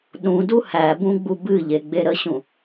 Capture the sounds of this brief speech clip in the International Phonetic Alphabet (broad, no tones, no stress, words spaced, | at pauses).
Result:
ɗũdu hæbũɡ͡bu bɨʎeɡ͡be ɾəɕũ